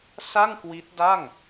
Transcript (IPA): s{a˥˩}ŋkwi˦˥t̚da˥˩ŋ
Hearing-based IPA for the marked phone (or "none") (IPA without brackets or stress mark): a˥˩